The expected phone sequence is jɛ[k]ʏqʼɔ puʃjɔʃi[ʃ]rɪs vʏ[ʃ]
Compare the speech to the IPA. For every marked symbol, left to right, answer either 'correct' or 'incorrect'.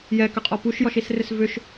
correct, incorrect, correct

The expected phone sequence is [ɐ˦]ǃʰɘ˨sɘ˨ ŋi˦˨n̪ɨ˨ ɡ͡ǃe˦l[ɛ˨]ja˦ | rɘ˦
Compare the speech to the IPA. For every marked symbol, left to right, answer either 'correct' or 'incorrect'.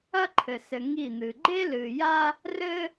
correct, incorrect

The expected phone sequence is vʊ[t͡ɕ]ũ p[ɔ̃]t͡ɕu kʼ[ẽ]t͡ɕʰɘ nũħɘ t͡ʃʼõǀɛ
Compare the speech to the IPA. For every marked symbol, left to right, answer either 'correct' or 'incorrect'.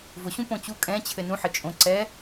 incorrect, incorrect, incorrect

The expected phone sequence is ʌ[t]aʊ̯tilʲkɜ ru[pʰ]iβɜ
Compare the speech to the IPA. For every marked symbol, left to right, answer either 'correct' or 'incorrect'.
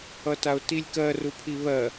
correct, correct

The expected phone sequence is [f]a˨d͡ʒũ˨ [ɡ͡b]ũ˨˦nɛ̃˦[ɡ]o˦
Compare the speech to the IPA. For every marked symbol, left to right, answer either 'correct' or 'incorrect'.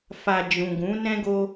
correct, incorrect, correct

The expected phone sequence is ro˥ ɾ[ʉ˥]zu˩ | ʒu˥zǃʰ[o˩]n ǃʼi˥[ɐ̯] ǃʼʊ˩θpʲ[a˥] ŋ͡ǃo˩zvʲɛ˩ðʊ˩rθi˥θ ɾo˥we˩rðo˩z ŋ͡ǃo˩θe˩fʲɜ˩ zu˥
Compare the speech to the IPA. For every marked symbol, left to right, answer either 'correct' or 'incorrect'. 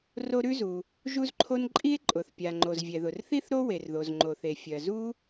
correct, incorrect, incorrect, incorrect

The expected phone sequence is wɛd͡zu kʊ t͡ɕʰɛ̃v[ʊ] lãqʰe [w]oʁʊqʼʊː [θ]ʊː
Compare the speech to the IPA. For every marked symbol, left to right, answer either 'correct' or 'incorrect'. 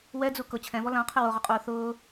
incorrect, correct, correct

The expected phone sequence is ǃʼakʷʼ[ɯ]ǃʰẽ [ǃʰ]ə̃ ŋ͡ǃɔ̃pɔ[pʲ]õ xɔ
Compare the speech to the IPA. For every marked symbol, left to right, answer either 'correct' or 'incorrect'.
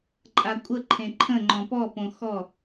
incorrect, correct, incorrect

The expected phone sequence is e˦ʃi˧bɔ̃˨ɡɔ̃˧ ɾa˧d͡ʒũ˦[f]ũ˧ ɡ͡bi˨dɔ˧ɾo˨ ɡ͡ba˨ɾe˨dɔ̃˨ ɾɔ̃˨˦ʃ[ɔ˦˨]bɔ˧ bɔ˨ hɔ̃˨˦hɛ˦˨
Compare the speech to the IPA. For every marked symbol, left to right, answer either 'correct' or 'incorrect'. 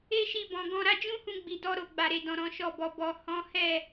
incorrect, correct

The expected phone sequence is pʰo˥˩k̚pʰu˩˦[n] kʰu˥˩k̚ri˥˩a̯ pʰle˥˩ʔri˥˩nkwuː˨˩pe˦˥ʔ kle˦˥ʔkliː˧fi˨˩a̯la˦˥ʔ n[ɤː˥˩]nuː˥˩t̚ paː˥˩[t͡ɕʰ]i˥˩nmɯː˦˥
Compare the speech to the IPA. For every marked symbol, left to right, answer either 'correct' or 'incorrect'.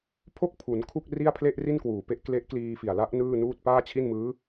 correct, incorrect, correct

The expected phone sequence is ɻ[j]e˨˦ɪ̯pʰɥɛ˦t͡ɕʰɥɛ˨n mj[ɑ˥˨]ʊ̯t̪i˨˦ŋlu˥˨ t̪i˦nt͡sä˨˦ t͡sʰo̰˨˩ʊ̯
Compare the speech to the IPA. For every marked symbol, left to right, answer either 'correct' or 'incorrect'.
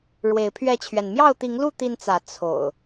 incorrect, correct

